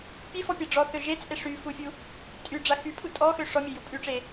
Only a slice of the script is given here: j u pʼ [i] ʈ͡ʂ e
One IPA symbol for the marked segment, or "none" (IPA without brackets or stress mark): y